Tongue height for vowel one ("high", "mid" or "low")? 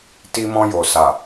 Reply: high